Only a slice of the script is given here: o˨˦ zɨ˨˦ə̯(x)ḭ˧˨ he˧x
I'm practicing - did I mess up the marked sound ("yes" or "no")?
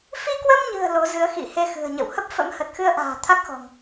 no